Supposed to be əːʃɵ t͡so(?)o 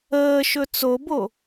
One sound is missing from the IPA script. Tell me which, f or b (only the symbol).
b